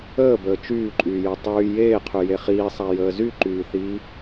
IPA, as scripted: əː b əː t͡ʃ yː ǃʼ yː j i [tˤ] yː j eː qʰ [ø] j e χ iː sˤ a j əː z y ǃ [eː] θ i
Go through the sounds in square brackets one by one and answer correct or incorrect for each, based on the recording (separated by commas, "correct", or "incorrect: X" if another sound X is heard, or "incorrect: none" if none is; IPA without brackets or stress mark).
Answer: correct, incorrect: y, incorrect: yː